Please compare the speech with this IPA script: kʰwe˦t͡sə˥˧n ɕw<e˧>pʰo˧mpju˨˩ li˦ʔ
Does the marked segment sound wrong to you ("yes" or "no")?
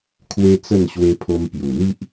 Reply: no